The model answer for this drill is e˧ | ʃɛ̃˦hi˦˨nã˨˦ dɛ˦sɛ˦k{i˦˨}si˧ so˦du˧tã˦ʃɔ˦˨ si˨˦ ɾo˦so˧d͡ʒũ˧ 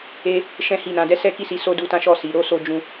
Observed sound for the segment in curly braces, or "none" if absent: i˦˨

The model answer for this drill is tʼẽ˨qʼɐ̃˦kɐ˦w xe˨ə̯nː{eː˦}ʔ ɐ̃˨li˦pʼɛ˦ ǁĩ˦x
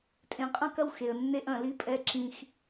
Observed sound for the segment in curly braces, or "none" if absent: e˦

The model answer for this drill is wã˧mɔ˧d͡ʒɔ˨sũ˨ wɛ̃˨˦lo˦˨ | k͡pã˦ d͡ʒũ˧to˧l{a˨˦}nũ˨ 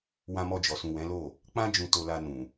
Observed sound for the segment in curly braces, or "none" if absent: a˧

